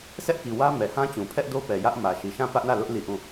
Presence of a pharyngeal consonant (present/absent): absent